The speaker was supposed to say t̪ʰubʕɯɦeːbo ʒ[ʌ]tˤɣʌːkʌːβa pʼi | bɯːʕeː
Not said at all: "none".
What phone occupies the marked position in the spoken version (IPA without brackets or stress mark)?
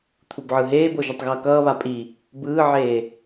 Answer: ʌ